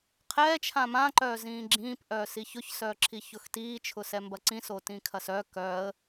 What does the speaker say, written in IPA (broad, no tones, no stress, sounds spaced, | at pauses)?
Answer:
qʰ ɛː t͡ʃʰ ã m ã ǃ œː z ĩː ɡ͡ǁ ĩː p ʔ œː s i ç ʊ ç s œː ǁʰ i ç ʊ x t iː t͡ʃʰ ʊ s ɛ m b ɐ ǀ ĩ s o t ĩ kʰ ɐ s œ k œ ə̯